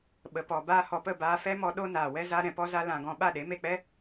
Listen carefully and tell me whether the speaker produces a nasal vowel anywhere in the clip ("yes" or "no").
yes